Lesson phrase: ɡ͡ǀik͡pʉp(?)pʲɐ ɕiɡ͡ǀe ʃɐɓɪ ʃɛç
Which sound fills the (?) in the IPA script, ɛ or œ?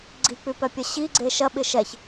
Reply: œ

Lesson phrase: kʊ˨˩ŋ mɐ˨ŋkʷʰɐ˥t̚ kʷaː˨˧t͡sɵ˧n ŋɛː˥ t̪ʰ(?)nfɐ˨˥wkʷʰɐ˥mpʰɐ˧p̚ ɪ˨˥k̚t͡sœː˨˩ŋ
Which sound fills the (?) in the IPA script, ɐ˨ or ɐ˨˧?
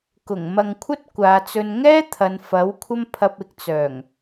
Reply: ɐ˨˧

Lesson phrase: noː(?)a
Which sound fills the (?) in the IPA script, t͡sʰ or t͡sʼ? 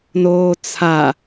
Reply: t͡sʰ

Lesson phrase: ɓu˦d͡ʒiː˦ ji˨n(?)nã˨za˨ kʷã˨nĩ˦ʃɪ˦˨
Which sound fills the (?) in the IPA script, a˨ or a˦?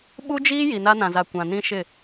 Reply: a˦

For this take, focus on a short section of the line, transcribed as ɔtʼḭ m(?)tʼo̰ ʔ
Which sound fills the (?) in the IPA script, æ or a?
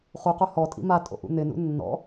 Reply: a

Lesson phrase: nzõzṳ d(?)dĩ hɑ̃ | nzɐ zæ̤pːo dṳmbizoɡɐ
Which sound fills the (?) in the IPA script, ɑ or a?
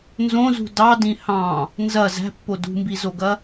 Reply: ɑ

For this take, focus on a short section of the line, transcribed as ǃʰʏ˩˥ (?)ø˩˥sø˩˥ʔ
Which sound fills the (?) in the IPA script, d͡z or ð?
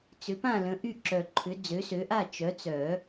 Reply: d͡z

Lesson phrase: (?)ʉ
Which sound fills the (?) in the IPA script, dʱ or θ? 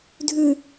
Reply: dʱ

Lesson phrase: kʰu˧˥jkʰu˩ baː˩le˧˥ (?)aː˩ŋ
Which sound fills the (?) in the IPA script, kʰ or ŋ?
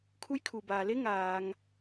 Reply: ŋ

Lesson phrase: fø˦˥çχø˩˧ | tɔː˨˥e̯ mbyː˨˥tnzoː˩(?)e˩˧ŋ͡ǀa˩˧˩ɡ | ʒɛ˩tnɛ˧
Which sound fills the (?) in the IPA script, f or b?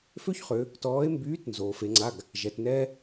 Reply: f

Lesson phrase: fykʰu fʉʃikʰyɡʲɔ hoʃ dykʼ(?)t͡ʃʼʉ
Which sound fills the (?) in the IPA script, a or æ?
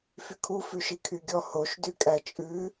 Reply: æ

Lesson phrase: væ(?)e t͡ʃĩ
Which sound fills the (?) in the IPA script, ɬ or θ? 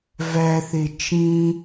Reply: θ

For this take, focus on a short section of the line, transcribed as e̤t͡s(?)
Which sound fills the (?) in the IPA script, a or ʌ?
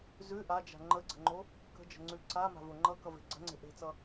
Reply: ʌ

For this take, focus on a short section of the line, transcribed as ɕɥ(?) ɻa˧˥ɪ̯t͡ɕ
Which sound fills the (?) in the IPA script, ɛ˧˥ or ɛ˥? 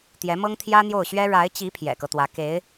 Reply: ɛ˥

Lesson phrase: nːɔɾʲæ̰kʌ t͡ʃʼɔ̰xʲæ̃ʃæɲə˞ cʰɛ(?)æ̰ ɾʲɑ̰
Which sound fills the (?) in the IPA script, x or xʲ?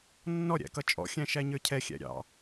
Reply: xʲ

